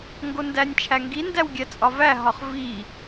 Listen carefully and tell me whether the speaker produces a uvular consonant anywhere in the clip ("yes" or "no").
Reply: yes